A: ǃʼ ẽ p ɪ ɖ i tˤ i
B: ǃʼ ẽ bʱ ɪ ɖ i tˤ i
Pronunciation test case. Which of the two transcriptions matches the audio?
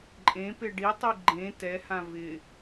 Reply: A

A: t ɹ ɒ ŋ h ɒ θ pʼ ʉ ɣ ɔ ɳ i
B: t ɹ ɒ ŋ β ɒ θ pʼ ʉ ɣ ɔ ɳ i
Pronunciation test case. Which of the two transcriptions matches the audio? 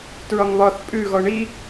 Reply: B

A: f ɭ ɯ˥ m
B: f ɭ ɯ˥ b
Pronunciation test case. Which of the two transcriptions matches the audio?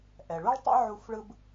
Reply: B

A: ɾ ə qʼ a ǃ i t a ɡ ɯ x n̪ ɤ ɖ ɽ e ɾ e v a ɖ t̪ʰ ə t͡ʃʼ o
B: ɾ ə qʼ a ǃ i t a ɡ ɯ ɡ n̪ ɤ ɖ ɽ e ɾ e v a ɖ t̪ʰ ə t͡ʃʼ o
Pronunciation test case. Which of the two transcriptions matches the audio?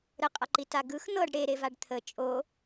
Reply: A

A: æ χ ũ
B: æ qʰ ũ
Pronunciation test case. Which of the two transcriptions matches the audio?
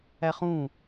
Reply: A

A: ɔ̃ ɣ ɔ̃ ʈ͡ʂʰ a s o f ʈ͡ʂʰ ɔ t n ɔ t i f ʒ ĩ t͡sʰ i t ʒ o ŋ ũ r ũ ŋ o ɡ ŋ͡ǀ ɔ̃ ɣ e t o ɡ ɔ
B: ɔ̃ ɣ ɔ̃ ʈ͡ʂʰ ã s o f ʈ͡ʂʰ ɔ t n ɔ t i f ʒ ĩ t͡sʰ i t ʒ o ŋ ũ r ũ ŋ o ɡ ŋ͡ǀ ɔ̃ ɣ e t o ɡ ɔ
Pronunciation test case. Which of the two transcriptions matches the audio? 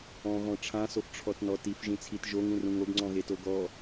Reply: B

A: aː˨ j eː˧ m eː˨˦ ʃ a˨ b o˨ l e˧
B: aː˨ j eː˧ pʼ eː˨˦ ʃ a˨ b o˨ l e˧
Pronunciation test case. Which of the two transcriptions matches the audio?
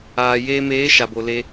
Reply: A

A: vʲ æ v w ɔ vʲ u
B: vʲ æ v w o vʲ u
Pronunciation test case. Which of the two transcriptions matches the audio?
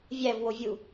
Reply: B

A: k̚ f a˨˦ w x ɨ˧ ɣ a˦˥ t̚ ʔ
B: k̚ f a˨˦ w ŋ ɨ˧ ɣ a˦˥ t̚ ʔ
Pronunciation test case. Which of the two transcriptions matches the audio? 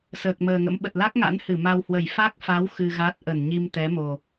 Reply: A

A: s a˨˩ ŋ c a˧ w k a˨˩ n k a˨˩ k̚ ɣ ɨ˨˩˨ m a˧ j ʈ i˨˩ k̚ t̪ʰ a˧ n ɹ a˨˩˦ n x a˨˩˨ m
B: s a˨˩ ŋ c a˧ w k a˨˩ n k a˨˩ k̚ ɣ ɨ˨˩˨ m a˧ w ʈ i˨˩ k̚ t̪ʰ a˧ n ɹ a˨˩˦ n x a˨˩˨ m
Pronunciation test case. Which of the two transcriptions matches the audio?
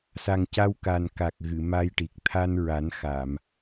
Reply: A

